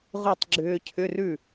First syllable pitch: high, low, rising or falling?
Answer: falling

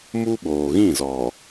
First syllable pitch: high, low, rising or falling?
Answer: high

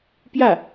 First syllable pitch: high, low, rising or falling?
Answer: falling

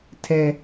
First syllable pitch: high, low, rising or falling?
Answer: low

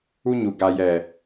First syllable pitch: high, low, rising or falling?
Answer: high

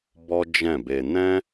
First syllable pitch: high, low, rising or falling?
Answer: high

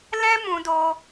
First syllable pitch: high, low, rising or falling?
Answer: high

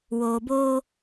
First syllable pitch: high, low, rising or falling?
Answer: low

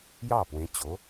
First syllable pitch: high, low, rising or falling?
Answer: falling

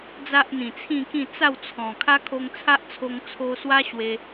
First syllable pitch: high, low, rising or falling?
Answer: high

